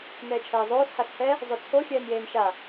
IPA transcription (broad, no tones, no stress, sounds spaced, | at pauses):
n ɛː t͡ʃʰ ɛː zˤ oː s h a s h ɛ | zˤ o t͡sʰ o xʲ ɛː n j eː n ʃ a